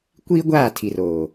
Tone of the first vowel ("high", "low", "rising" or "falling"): high